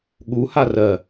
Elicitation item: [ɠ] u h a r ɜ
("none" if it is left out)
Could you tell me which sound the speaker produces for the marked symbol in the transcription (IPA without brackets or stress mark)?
ɠ